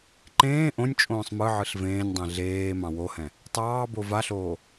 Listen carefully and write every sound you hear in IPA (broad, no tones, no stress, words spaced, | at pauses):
ǃẽː ʔõnʲ t͡ʃʼõːsˤmɯʕɯɬ vẽːnʲdˤɛ̃ ɮeː mɑ̃wohɛ̃ | tˤɑːbo vaɬoː